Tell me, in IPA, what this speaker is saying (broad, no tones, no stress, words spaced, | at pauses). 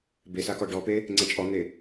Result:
besa kɔɖɔpe | ŋ͡ǀɛt͡ʃʼɔn̪e